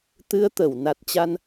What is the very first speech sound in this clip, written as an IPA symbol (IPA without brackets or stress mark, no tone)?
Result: t̪